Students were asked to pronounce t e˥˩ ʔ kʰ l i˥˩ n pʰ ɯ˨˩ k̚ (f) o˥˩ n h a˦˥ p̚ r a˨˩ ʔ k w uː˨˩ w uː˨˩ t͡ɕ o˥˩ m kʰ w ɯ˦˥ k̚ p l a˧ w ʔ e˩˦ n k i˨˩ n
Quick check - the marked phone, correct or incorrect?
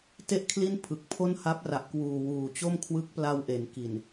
incorrect